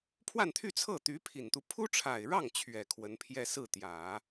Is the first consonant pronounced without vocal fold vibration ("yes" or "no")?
yes